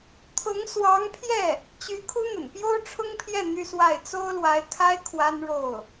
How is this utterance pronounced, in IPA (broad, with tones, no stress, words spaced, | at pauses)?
t̪ʰʊ˧˥ŋ swɑ˧˥ŋpʰjɛ˥˩ | t͡ɕy˧˥kʰu˥n̪ə̰˨˩n pjo˥ʊ̯ʈ͡ʂʰʊ˥ŋpʰjɛ˥˩ n̪y˥swa˥˩ɪ̯ t͡so˥ʊ̯lwa˧˥ɪ̯kʰa˥ɪ̯ kʰwa˥nɻo˥˩ʊ̯